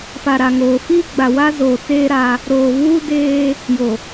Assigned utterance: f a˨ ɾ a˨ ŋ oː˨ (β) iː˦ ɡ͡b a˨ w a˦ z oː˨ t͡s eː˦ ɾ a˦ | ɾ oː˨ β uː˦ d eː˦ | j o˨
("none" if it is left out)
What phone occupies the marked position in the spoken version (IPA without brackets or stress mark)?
f